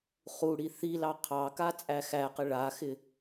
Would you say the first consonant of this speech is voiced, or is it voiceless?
voiceless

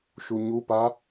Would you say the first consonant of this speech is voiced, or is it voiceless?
voiceless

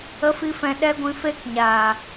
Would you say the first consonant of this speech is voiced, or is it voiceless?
voiceless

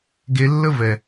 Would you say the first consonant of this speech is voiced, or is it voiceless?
voiced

